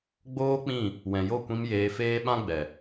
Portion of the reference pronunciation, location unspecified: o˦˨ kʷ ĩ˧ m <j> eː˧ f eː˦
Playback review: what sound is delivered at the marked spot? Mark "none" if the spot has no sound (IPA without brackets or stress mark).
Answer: j